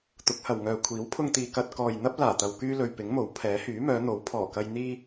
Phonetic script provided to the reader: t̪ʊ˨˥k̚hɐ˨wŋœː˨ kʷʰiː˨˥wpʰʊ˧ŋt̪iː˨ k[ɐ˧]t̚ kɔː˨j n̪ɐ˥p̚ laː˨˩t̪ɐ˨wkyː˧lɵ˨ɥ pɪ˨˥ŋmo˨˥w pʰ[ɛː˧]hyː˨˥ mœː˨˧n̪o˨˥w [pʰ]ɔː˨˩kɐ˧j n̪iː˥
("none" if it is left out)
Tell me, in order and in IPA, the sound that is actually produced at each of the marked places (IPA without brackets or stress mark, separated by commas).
ɐ˧, ɛː˨˥, pʰ